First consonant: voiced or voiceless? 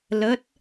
voiced